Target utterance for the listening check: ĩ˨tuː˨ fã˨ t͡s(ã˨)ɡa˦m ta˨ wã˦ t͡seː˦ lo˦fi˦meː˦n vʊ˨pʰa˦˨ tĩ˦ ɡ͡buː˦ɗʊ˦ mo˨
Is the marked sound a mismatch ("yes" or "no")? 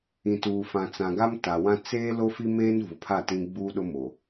no